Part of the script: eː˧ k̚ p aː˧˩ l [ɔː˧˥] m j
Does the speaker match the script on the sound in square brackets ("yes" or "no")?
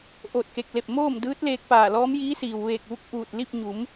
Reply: yes